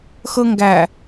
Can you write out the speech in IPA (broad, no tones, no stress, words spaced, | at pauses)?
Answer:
xɤŋɡæ